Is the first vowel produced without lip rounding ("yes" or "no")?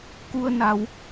no